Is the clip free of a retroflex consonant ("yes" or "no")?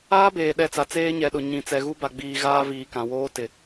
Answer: yes